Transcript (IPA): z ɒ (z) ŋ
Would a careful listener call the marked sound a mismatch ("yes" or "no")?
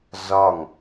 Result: yes